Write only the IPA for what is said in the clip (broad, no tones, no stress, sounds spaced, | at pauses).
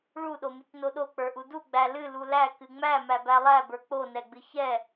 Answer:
ɭ u ɗ o m ɨ c n o ɗ o k͡p ə˞ ʔ u d u ɡ͡b æ l ɨ l u l æ k ɨ ŋ͡m æ m æ b æ lˠ æ b ə˞ k͡p o n ɛ ɡ͡b ɨ ç ɛ